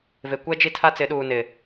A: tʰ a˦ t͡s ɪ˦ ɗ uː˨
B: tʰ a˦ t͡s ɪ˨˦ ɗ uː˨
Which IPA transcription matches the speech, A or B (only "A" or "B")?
B